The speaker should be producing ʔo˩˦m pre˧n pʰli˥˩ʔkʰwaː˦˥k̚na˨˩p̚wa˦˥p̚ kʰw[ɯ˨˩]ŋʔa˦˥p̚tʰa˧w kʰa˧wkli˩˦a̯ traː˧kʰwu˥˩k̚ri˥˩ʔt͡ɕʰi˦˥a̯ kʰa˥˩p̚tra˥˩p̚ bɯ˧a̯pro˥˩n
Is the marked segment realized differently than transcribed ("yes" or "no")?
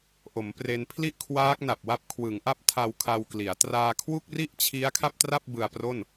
yes